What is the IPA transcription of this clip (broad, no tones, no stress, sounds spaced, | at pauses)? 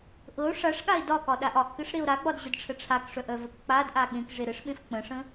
ʔ ɤ o̯ ʂ a ʂ ɠ a e̯ d ɒ k ɒ ɗ a ʔ ɒ ʔ k ɘ ʂ ɾ e o̯ ɾ a ɡ͡b ɒ d ʑ ə d ʈ͡ʂʰ ə ʈ͡ʂʰ a k ʂ œ ʔ œ v ə k k͡p a d ʔ a ɠ ẽ k ʐ e ɾ ɘ ʂ ɓ ẽ f k͡p ə̃ ʂ ə̃